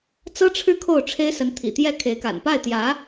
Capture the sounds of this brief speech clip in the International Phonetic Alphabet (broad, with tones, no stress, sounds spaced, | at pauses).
t͡s ɤ˥ ʈ͡ʂʰ ɻ̩˥˧ kʰ o˥˩ ʊ̯ ʈ͡ʂʰ e˥ ɪ̯ s ə˧˥ n t̪ʰ ḭ˨˩ t̪ j ɛ˥˩ kʰ e˧˥ ɪ̯ k a̰˨˩ n p a˥˩ ɪ̯ t̪ j ä˧˥